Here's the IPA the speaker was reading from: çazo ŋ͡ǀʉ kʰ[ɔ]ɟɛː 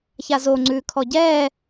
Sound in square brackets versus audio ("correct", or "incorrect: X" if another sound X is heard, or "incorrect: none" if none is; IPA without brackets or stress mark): correct